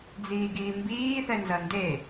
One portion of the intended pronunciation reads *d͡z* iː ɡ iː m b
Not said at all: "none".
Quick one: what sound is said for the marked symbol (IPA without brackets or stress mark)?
d͡z